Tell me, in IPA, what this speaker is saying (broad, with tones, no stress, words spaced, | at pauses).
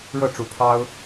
ɻɤ˥˨ʈ͡ʂu˨˩pʰɑ˦ʊ̯